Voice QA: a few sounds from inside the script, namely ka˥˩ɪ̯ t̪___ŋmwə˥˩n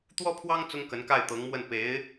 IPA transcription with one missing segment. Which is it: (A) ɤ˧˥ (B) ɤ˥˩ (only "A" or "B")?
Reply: A